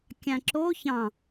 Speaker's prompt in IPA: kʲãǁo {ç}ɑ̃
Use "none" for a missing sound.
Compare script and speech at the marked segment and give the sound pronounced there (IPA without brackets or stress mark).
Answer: ç